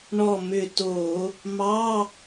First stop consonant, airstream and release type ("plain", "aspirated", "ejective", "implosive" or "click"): plain